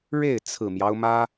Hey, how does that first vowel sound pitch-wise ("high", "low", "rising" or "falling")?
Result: falling